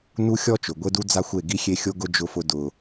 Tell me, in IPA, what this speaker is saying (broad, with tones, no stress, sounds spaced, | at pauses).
n u˦ xʲ ɔ˦ t͡ʃ ʊ˨ ɡʷ e˦ d u˦ d͡z a˦ xʷ e˦˨ ɡ i˦ xʲ e˦ xʲ o˦ ɡ ʊ˦ d͡ʒ ʊ˦ f ʊ˦ d ʊ˦